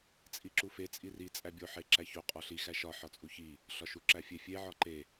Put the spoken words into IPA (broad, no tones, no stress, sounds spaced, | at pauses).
t͡sʼ i ǁ u f e t͡sʼ i r i t͡sʼ æ bʲ o ħ e ǁ æ ç o qʼ ɒ ɬ i x æ ʃ ɒ ħ ɒ t͡sʼ u ç i | ɬ ɒ ʃ u ǁ æ fʲ e fʲ e ʕ ɒ ǃ e